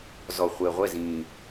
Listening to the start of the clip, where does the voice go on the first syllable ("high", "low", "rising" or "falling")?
low